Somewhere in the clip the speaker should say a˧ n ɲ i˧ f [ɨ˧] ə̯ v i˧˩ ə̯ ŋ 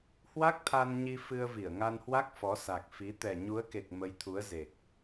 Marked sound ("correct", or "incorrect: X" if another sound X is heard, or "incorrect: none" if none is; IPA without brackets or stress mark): correct